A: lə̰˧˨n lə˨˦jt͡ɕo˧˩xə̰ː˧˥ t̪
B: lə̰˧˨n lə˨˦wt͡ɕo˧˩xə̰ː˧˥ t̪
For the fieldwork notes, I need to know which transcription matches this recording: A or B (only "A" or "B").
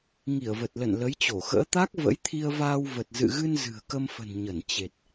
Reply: A